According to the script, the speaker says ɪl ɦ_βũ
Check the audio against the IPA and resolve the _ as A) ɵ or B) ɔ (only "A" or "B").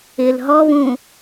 B